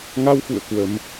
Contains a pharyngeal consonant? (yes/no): no